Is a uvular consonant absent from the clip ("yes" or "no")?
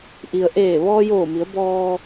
yes